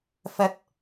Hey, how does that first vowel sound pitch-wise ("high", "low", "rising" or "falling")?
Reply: rising